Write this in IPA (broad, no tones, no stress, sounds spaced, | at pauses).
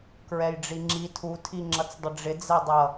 k ɹ ɛ j ɖ͡ʐ i ŋ͡ǁ i tʰ u tʰ i ŋ͡ǁ ʌ t͡s dˤ ə ɖ͡ʐ ɪ d͡z ɛ dˤ ʌ